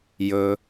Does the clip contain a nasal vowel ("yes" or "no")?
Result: no